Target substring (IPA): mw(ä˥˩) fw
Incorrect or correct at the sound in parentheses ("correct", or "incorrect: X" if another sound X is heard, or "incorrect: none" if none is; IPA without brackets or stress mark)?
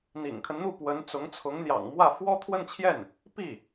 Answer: correct